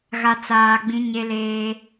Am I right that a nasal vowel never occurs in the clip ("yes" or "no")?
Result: no